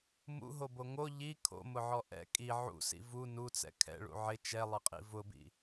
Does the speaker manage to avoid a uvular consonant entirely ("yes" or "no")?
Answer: no